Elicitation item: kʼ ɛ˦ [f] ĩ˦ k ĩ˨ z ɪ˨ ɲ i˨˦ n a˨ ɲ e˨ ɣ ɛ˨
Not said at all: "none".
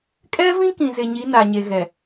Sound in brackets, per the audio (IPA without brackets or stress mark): v